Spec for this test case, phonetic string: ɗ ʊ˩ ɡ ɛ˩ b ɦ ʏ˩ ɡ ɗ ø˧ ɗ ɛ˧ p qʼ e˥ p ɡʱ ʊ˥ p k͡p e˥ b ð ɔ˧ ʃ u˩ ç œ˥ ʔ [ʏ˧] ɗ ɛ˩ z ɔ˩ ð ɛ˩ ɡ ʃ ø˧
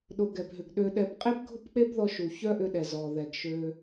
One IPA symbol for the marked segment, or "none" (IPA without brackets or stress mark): ʏ˧